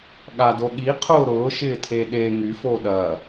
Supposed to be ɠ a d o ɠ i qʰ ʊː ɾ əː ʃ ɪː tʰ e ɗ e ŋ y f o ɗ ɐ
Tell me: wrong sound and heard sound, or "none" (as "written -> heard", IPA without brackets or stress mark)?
əː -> ʊː